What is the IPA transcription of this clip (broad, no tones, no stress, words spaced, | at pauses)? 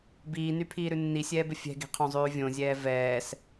biːnypʰiːɾʉ nːisʲɛːbɪ fʲɛ̤ɡi̤qʰõzˤʉː vʲõzʲɛː vɛːs